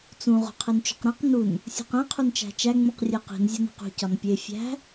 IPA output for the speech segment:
t͡s ũ ʁ o̤ qʰ e n t͡ʃ o̤ q ɾ ẽ q n u n | sʲ ṳ q ẽ qʰ u n t͡ʃ æ̤ t͡ʃ æ ŋ͡m ũ q rʲ e q i̤ n zʲ ɒ n e̤ q ṳ c ɒ n pʲ e fʲ æ̤

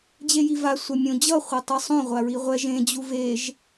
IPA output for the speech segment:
d͡ʑ e j i v a sʷ ɛ mʲ õ d͡ʑ ʌ χʷ e tˤ i sˤ õ ʁʷ a ɹ i ʁʷ ɛ ʒ ẽ d͡ʑ u v e ʒ

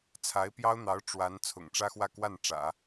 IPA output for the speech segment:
t͡sʰ a˧˥ ɪ̯ p j ɑ˥ ʊ̯ n̪ ɑ˧˥ ʊ̯ ʈ͡ʂ w a˧˥ n t͡sʰ ʊ̰˨˩ ŋ ʈ͡ʂ ä˥ x w ä˥˧ k w a˥˩ n ʈ͡ʂ ä̰˨˩˦

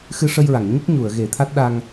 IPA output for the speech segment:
x ɨ˧ ʂ ə˧ j ɹ a˨˩˨ ŋ ɲ ə˦˥ k̚ ɲ u˨˩˨ ə̯ ɣ e˨˩˦ t̪ʰ a˦˥ t̚ ɗ a˧ ŋ

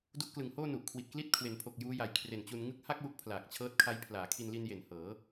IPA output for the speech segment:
d u˦˥ ʔ k l ɯ˨˩ ŋ h oː˥˩ n u˨˩ ʔ kʰ w i˨˩ t̚ k l i˥˩ t̚ kʰ w e˩˦ n pʰ o˨˩ k̚ j uː˦˥ j a˨˩ j kʰ r e˨˩ n t͡ɕ u˧ n ŋ ɯ˥˩ k̚ h a˥˩ k̚ w u˦˥ k̚ pʰ l aː˨˩ k̚ t͡ɕʰ ɤː˦˥ t̚ kʰ a˦˥ j pʰ l aː˩˦ kʰ i˧ n l i˧ n j e˨˩ n h ɤː˩˦

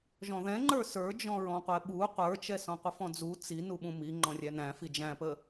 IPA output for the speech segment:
ʒ ɔ̃ ð ɛ̃ ŋ͡ǃ ə˞ s ə˞ d͡ʒ ɔ̃ ɹ ɔ̃ qʷ ɛ ɓ u qʷ ə˞ t͡ʃ ɛ s ɔ̃ qʷ ə f ɔ̃ d͡z u t͡s i n u ɓ ũ m i ŋ͡ǃ ɔ̃ rʲ æ n æ̃ f i d͡ʒ æ̃ p ə

